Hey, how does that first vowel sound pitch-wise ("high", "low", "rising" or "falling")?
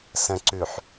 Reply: low